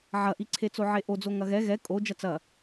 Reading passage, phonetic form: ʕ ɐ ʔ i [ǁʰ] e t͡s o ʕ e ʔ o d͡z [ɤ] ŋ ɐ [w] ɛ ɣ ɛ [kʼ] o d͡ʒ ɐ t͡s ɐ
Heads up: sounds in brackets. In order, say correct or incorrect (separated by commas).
incorrect, incorrect, incorrect, correct